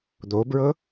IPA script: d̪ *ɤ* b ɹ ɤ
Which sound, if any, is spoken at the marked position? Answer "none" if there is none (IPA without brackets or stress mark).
o